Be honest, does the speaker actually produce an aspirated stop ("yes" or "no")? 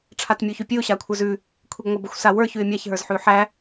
yes